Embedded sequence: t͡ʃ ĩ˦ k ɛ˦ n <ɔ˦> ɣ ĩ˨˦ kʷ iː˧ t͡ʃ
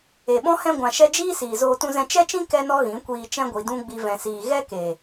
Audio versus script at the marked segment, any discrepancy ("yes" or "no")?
no